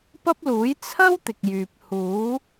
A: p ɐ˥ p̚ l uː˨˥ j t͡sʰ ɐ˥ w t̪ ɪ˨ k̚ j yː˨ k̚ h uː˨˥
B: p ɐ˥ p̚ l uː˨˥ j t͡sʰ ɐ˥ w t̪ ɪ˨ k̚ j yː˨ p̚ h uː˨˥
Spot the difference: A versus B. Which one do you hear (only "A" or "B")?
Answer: B